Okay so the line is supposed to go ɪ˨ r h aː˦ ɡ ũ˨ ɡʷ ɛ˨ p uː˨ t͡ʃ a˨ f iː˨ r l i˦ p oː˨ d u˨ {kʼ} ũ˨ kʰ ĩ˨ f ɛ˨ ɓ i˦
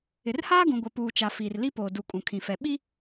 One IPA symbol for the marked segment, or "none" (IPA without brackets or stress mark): kʼ